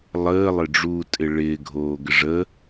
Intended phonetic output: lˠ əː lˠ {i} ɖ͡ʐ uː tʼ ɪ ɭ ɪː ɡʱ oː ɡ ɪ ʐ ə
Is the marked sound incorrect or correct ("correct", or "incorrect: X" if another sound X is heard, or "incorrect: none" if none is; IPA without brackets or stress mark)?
incorrect: ɪ